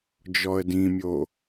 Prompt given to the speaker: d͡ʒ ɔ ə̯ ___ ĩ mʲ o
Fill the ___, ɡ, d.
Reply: d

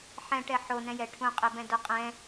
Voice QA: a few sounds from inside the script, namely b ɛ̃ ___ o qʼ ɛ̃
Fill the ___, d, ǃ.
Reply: d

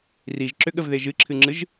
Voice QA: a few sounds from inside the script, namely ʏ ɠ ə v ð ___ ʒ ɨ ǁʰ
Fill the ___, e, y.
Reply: e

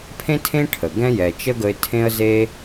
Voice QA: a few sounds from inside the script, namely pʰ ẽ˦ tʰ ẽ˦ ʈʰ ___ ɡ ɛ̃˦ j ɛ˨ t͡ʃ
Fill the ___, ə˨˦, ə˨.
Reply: ə˨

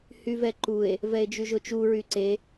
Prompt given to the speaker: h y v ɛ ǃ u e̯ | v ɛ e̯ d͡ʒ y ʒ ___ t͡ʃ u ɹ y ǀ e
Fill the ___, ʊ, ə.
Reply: ʊ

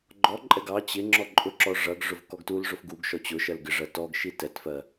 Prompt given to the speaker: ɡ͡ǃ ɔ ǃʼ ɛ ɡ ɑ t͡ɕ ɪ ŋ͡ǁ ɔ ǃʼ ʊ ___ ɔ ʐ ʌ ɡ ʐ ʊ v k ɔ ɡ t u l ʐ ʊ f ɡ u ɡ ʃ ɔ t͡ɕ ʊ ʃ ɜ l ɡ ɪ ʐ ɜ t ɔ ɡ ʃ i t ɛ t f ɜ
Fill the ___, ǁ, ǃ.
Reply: ǁ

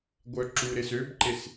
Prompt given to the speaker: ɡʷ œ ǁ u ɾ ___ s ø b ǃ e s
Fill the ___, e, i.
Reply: e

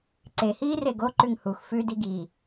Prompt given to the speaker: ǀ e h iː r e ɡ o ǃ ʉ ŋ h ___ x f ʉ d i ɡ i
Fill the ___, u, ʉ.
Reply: u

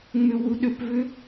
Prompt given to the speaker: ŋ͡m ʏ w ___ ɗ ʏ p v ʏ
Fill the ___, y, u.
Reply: u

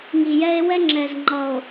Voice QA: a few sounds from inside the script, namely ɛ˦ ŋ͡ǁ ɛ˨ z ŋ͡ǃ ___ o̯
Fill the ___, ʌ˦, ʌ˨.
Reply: ʌ˨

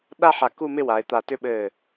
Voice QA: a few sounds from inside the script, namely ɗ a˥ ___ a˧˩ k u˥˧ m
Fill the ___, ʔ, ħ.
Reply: ħ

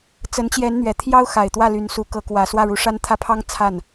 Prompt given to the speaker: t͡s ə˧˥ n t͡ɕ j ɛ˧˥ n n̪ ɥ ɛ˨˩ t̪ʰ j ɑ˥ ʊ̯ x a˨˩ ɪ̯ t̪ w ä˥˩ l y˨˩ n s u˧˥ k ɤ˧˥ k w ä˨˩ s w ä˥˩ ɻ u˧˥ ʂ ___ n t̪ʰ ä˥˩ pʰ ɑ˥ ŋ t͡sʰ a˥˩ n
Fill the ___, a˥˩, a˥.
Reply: a˥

